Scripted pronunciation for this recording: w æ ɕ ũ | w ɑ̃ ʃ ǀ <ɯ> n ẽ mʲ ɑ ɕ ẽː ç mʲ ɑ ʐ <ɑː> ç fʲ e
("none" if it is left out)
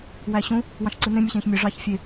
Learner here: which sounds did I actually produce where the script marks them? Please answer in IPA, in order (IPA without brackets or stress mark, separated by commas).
ɯ, ɑː